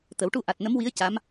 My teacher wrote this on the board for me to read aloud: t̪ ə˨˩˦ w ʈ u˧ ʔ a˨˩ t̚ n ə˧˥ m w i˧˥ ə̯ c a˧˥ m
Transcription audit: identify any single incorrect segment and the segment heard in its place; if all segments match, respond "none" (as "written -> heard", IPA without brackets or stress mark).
none